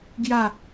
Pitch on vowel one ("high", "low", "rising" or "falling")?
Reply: falling